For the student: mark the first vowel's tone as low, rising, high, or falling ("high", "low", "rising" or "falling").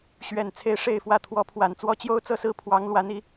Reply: low